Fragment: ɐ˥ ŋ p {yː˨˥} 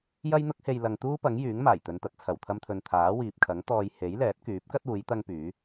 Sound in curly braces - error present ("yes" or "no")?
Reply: no